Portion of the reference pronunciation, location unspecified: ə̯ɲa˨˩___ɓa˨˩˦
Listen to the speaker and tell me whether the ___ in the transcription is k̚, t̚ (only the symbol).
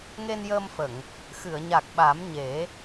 k̚